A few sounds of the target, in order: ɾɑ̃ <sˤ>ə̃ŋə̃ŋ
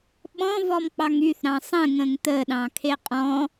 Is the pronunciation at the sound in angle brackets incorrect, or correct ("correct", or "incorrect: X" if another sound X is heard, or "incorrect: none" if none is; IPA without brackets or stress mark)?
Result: correct